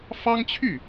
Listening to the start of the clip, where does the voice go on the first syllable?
high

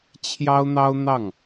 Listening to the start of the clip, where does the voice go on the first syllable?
high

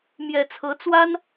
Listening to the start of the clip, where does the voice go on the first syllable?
low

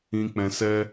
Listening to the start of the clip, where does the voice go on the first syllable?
high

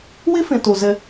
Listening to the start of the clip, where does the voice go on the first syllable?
high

